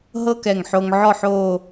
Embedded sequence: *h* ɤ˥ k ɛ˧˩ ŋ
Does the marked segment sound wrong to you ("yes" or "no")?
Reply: yes